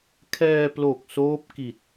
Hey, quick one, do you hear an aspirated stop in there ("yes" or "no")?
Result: yes